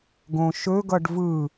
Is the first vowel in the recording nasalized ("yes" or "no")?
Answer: yes